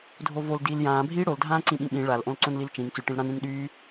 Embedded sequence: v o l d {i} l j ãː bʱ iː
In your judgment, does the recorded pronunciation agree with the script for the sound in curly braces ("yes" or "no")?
no